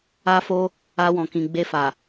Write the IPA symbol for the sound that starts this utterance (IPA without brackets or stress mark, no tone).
a